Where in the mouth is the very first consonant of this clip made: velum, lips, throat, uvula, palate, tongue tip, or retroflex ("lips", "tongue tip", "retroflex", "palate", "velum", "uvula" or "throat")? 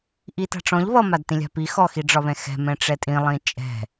throat